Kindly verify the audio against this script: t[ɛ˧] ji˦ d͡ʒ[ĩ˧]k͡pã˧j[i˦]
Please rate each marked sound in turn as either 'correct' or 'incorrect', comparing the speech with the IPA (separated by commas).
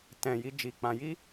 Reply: incorrect, incorrect, correct